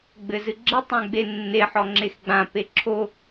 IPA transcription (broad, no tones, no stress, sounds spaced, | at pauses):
ɡ͡b ɘ z ɨ ɡ͡ǁ ɪ tˤ ɛ̃ ɡ͡b e nː e ħ ɔ ŋ͡ǁ e x ɡ͡b ã p e ǁʰ o